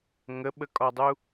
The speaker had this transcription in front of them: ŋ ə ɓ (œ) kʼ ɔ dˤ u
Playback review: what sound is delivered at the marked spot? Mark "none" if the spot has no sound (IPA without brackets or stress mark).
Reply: ə